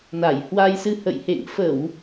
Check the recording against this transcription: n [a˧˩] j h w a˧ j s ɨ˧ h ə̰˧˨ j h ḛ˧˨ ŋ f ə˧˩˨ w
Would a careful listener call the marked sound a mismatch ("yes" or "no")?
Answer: no